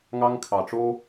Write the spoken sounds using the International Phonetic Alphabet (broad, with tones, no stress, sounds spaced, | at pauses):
ŋ ɑ˧ ŋ kʰ ɑ˨ ʈ͡ʂ o˦